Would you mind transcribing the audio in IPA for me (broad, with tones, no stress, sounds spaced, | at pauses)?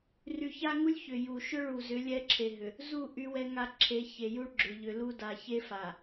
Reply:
r y˨ ç a˦ ŋ u˦ lʲ ç ʏ˨ j u˨ ʃ ʏ˦ ɭ u˨ z ʏ˨˦ lʲ ɛ˦ ǁʰ e˨ ɦ ʏ˨ | z u˦˨ ʔ y˦ w ɛ˦ ŋ a˦ ǁʰ e˨˦ ç e˨ j u˦ ɭ ɡ͡ǁ ʏ˨ ʎ ʏ˨ l u˦ d a˨ ç e˦ f a˨